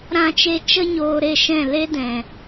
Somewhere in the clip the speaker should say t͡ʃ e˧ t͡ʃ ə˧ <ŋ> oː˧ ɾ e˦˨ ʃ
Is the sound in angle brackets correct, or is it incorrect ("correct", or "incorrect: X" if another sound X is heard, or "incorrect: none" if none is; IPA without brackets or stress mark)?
incorrect: ɲ